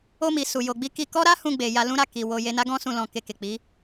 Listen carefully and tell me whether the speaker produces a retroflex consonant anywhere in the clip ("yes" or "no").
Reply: no